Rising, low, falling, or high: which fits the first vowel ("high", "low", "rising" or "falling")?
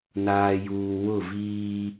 low